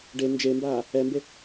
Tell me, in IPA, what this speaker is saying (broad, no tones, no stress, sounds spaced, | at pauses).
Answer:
ɖ e n d͡ʒ e m b aː | ɛ m b e